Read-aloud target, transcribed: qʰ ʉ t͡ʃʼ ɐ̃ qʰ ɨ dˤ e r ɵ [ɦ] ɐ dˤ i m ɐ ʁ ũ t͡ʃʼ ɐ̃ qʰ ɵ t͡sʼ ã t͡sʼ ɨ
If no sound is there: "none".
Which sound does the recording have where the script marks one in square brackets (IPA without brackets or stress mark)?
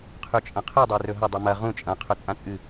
ɦ